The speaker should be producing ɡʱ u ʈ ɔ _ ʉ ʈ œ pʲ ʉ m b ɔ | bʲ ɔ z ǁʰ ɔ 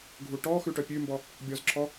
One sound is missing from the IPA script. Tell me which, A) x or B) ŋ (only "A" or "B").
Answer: A